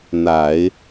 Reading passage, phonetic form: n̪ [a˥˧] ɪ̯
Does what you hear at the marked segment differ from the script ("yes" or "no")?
yes